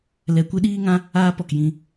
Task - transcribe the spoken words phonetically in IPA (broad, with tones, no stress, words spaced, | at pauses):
lɛ˨kʷɨ˧ ɗiː˦ŋã˦ | aː˧pɔ˨k jĩ˧